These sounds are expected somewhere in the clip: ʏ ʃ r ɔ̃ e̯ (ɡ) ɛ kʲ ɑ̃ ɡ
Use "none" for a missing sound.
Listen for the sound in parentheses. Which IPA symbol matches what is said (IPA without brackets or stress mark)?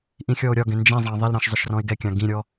ɡ